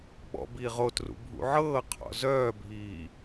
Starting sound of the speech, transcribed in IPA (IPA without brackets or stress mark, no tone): ɓ